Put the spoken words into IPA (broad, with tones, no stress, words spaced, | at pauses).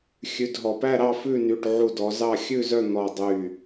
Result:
xʲʉ˩˧˩dɦɔ˩pæ˥˨ɾɑ˥˨ fʉ˥˨ny˩˧˩ʈʕu˧˩ dɔ˩˧zɑ˥˨ xʲʉ˥˨zœ˥˨n̪ɔ˧˩ dˤy˧˩